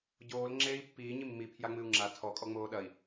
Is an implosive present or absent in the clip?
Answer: present